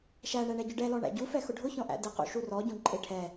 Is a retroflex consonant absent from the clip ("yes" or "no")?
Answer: no